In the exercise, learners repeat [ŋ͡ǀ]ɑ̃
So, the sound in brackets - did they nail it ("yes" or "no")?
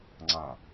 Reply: yes